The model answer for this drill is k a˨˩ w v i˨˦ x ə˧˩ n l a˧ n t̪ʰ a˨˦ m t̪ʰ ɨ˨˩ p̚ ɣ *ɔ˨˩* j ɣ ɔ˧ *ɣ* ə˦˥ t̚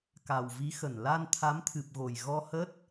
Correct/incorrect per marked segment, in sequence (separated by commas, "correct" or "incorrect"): incorrect, incorrect